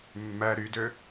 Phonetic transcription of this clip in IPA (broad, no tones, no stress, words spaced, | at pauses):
mːæ ɾydø